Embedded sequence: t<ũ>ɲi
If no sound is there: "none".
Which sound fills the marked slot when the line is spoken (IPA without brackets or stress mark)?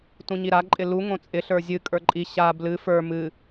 ũ